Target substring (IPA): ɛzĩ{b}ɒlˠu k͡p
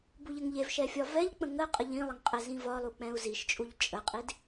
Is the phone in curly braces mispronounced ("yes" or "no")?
yes